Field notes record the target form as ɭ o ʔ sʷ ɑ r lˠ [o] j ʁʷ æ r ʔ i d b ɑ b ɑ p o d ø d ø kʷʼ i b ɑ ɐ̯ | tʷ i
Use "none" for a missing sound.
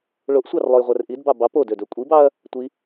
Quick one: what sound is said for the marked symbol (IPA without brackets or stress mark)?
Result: o